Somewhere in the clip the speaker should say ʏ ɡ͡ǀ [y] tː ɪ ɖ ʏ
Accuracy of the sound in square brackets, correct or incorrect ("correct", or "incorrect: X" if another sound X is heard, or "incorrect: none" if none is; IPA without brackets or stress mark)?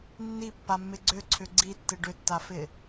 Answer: incorrect: i